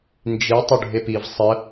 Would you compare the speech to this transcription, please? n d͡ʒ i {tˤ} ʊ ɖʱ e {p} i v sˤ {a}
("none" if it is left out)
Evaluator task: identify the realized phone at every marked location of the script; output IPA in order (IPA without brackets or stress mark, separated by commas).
tˤ, p, ə